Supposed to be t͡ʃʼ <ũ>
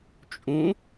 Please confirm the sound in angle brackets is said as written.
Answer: yes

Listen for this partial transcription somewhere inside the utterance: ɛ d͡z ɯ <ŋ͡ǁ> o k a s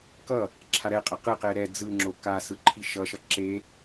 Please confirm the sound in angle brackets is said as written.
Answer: yes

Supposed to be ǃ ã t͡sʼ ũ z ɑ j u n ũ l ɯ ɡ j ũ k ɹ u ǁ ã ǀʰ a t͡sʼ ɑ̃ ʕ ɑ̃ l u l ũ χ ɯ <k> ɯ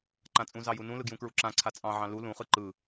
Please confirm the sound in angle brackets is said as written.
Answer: no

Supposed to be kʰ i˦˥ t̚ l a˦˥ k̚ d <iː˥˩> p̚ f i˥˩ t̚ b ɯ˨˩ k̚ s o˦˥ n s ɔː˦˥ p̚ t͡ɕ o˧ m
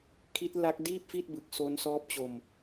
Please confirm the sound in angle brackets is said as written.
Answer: yes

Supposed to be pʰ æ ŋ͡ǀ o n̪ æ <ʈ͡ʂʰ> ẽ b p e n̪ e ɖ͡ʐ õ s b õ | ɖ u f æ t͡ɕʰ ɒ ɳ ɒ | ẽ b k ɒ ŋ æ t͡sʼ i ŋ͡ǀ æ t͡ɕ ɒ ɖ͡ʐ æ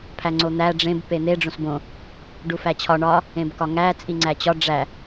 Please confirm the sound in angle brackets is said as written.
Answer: no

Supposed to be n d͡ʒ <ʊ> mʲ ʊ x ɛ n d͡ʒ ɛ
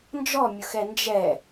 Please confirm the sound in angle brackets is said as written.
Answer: no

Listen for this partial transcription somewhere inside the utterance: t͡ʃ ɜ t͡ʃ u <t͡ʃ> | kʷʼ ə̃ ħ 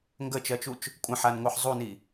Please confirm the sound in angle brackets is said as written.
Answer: yes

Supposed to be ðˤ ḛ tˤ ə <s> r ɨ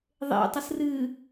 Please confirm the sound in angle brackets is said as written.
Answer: yes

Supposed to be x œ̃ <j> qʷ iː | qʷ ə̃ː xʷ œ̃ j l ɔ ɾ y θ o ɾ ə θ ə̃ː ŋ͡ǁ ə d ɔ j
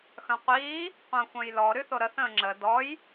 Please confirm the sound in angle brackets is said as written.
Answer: no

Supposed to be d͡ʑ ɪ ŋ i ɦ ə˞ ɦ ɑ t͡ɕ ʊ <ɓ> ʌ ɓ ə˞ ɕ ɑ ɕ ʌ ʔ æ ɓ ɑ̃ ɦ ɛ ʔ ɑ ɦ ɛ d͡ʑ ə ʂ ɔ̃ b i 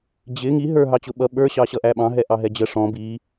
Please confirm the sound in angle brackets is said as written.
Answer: yes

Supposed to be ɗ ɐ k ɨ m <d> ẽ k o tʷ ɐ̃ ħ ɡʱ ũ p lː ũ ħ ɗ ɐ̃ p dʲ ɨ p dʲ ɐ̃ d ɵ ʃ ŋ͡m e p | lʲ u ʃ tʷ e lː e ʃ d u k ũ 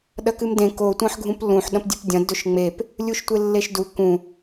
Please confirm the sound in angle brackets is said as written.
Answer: yes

